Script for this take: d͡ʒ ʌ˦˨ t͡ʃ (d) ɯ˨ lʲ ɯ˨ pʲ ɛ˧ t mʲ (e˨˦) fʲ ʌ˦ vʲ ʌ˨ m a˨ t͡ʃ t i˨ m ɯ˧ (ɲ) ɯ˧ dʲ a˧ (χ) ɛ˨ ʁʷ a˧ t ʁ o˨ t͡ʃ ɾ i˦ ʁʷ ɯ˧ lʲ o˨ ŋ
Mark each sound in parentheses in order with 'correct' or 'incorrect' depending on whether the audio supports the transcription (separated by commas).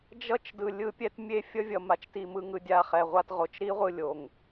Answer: correct, incorrect, incorrect, correct